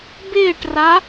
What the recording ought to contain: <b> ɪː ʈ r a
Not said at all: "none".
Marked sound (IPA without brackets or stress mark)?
b